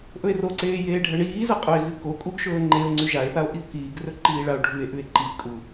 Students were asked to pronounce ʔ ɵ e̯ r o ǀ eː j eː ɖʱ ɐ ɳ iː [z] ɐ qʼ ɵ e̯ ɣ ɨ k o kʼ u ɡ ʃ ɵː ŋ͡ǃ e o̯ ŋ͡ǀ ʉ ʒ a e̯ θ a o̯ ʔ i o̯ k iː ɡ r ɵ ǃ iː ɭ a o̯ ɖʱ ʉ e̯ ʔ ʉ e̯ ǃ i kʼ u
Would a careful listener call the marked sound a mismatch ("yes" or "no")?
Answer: no